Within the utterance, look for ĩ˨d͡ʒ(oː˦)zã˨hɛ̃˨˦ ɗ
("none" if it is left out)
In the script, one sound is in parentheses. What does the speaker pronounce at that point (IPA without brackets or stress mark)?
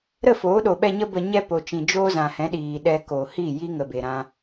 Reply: oː˦